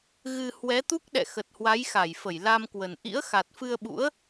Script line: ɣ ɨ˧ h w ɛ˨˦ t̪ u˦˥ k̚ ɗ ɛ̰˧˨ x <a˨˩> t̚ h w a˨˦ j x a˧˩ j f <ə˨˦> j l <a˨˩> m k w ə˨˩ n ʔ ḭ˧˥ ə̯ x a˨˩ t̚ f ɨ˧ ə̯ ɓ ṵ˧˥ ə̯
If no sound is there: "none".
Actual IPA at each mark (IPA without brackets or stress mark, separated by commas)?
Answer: ə˨˩, ə˧˩, a˧